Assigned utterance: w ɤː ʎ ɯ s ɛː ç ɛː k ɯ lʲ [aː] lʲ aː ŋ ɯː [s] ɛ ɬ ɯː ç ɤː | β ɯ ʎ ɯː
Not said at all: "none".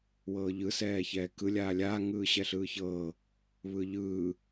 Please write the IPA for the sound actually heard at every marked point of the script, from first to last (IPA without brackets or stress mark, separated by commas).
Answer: aː, ɕ